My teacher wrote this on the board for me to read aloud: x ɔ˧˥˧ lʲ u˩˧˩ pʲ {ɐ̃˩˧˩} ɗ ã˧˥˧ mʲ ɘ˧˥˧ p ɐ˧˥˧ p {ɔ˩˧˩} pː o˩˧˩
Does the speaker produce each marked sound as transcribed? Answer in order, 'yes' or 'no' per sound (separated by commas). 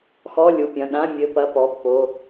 yes, yes